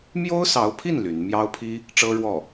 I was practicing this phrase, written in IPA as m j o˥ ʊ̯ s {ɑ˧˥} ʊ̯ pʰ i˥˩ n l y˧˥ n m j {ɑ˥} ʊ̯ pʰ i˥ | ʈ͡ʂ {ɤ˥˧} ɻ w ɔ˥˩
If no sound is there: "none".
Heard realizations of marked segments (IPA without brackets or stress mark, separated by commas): ɑ˧˥, ɑ˥, ɤ˥